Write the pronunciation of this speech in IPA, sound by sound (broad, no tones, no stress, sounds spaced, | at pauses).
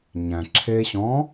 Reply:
ɲ æ̃ ǁʰ e ɕ ɔ̃